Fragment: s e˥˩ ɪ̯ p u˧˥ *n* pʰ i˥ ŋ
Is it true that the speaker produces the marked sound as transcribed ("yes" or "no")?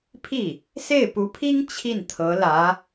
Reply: no